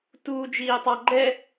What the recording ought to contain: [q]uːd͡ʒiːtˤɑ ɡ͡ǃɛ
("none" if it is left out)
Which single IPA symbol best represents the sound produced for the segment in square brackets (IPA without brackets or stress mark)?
t